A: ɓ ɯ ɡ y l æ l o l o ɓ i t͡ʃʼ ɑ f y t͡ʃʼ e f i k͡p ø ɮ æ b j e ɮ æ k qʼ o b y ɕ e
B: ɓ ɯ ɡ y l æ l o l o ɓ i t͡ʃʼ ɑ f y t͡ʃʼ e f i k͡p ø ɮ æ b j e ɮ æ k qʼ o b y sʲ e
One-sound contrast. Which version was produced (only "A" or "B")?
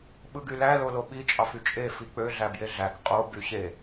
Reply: A